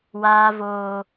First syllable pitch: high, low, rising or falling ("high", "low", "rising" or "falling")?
high